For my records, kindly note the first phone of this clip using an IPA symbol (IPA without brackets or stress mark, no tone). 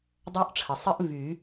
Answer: dˤ